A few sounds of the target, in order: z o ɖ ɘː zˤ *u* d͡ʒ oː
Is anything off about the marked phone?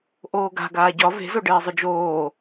yes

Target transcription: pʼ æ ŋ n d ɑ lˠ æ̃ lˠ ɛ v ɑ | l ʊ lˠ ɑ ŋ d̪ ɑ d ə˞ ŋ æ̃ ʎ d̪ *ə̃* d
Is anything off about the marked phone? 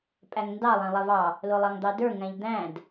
yes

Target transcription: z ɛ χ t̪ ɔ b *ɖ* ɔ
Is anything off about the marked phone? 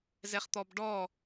no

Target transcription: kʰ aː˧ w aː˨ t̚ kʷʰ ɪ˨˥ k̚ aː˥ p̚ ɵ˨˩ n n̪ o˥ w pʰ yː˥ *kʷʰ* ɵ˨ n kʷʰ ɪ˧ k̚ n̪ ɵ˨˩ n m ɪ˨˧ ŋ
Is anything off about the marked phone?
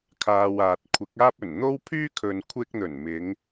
yes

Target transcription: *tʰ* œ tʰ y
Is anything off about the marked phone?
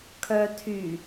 yes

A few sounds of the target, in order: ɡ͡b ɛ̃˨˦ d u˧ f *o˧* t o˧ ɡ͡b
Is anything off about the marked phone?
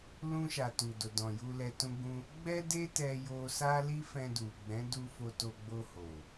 no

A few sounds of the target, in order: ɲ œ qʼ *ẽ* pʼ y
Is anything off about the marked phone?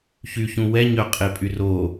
yes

